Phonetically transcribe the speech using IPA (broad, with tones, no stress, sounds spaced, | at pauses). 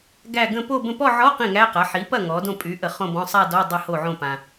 ɡ æ˥˧ ɡ ə̃˥˧ p o˥˧ b ə̃˥˩ p ɔ˥˧ ʕ ɔ˧˥˧ q ĩ˥˩ ŋ æ˧˥˧ q a˩˥ ħ i˩˥ p ɐ˥˩ ŋ ɔ˩˥ d õ˥˩ pʼ y˩˥ ʔ ə˨ χ õ˥˧ b ɔ̃˧˥˧ sˤ a˥˧ d ɔ˧˥˧ dˤ ə˥˩ h o˥˩ ʕ õ˥˩ p ã˨